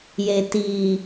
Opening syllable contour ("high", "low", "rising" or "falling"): low